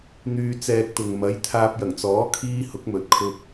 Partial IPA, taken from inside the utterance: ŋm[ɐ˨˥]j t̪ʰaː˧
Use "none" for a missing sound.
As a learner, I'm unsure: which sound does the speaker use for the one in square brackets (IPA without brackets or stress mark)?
ɐ˨˥